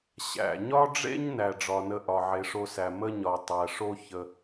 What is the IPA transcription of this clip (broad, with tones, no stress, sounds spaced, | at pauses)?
ɕ æ̰˩ ɲ ɒ˥ ɖ͡ʐ ḛ˥ ɲ n æ˩ ɖ͡ʐ ɒ˩ n ə˧ ʔ ɒ˩ ʕ e˩ ʂ o˧ s æ˩ m ə˥ ɲ ɒ˩ tˤ æ˩ ʂ o˥ ç ə˩